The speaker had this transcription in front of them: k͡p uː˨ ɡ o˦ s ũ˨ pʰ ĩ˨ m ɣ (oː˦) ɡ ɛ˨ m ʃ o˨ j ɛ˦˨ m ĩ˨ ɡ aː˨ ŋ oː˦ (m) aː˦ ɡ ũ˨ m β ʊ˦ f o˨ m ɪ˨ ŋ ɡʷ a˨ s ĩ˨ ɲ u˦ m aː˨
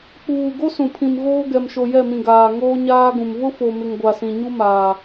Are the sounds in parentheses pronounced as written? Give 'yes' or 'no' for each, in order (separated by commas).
yes, no